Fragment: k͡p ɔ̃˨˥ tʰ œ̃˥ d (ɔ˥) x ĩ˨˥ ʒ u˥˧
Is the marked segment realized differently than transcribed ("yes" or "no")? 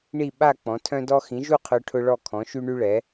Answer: no